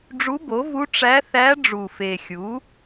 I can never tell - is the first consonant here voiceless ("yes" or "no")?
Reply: no